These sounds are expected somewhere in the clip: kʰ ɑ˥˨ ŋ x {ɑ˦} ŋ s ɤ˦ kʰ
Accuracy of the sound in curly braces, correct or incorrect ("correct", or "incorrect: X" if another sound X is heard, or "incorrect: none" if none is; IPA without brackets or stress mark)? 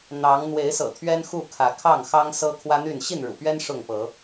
correct